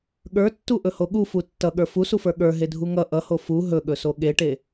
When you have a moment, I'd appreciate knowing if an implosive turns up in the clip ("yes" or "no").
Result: yes